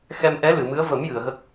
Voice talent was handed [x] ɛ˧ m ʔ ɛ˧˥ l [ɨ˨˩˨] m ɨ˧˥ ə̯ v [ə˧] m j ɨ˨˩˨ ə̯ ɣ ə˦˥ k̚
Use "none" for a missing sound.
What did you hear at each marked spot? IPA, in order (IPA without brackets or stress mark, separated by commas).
x, ɨ˨˩˨, ə˨˩˦